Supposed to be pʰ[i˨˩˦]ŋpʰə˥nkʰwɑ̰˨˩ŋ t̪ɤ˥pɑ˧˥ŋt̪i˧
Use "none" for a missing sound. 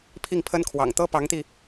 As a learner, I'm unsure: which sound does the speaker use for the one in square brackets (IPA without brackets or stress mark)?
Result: i˥˩